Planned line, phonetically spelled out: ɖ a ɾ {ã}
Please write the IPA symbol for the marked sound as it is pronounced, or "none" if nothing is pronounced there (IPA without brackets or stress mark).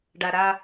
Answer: a